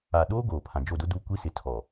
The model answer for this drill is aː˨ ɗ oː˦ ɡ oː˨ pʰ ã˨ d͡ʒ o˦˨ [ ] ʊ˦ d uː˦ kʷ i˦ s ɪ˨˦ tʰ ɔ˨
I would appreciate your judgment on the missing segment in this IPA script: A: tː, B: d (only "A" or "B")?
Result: B